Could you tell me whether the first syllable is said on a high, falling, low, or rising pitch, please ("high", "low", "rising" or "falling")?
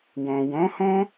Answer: low